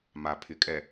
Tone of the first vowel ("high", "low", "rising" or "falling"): low